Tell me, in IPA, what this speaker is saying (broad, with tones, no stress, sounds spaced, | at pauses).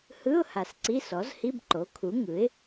h ɯ˧˥˧ ʊ̯ h a˨ s ǀ i˧˥˧ s ɔ˩˥ z h i˧˥˧ b ǃ o˩˥ kʰ u˩˥ ŋ ɯ˩˥ ɪ̯